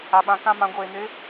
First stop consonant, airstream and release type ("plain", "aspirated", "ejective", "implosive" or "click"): implosive